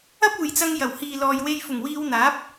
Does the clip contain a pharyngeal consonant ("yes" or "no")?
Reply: no